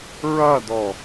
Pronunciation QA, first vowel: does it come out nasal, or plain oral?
oral